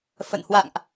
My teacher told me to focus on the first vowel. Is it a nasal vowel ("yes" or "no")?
no